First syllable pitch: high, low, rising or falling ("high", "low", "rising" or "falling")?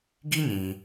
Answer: high